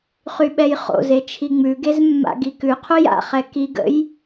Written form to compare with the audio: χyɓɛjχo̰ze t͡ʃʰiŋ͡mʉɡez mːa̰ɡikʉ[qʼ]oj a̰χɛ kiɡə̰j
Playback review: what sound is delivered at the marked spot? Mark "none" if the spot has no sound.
qʰ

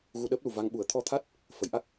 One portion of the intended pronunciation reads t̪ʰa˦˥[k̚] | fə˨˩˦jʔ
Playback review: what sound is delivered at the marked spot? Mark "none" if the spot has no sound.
t̚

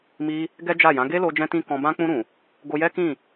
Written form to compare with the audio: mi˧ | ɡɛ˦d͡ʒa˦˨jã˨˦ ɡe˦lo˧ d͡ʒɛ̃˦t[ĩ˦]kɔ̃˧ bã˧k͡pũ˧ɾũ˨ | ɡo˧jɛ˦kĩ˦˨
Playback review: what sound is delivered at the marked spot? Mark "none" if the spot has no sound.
ĩ˦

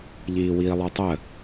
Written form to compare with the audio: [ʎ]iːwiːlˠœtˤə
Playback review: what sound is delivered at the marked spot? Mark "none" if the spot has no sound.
ʎ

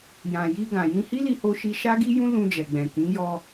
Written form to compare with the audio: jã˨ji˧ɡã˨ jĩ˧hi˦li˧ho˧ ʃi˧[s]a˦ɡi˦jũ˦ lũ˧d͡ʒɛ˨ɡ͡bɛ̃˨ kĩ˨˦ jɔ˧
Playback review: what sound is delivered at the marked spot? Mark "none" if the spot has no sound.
ʃ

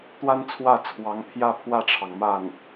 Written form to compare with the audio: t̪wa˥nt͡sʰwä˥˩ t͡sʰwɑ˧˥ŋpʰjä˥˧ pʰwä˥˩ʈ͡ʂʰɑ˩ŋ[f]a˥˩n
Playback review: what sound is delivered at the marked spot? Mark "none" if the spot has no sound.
m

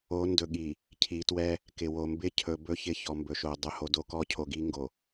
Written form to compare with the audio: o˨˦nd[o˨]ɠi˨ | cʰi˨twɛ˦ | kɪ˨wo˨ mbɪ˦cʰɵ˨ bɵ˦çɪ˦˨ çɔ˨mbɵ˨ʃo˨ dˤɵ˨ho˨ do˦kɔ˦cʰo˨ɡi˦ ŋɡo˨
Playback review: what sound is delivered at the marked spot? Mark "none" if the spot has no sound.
ɵ˨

